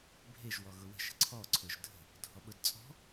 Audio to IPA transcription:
bʱ e ʒ w ɔ ɣ ʊ w ə̤ ʃ ə̤ ǀʰ ɔ ǀʰ ʊ ʒ dʱ ə̤ | dʱ ɔ ɓ ʊ d t͡sʼ ɔ̤

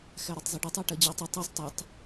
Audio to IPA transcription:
x æ ɾ ɒ tˤ zˤ i ɖ ɔ tˤ æ ʈ ɜ d͡ʑ æ tˤ ʌ tˤ ɛ sˤ tˤ ʊ tˤ

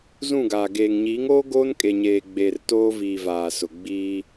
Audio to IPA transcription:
z ũ˦˨ ɡ aː˨ ɡ eː˨ ŋ ɲ iː˨˦ ŋ oː˦ ɡ oː˦ n kʼ e˨ ɲ eː˨ ɡ͡b e˨ r t oː˦ v iː˨ v aː˨ s ʊ˨ ɡ͡b iː˦

